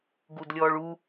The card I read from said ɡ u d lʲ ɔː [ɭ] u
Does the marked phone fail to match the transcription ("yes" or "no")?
no